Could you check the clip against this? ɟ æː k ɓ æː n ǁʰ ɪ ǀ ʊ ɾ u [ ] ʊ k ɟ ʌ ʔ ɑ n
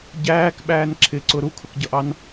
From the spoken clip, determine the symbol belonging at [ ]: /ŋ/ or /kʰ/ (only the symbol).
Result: kʰ